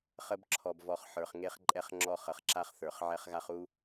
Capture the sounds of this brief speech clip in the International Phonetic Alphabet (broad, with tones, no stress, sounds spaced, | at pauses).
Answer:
χ ə˦ b ǁʰ ɔ˨ b v ɔ˨ χ ħ ə˞˨ χ ŋ e˦ χ ǃʼ ɛ˦ χ ŋ͡ǁ ɔ˦˨ χ ə˨ χ ǁ a˦ χ θ ə˞˨ χ ʕ ɛ˦ χ ɣ a˦ χ u˦